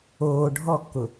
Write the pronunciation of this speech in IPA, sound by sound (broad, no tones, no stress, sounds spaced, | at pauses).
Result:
oː ɖʱ ɔ kː ʊ